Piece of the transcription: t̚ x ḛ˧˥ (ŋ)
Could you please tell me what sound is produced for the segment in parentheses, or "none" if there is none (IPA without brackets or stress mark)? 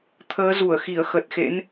n